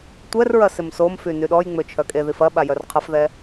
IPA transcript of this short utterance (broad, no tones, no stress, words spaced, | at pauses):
tʷɛr ɹɐsɪmsomfy nyɗɔjŋ͡mø t͡ʃʰœkʼeðif ɐ ɓajœrqʰɐfðɛ